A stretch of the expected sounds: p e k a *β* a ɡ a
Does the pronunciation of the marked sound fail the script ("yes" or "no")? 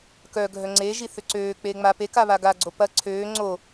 no